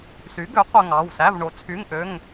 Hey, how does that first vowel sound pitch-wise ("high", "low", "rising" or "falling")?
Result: rising